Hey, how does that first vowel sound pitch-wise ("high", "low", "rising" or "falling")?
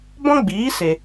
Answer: high